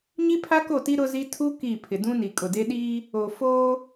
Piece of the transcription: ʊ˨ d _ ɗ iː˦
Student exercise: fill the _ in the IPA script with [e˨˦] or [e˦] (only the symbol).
e˦